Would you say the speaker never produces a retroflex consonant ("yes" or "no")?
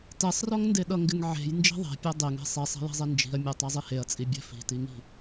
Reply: yes